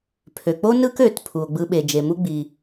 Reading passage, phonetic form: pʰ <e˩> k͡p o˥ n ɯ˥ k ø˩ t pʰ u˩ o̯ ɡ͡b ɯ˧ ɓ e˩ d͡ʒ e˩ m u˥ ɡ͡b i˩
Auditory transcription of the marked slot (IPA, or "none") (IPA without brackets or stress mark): ø˩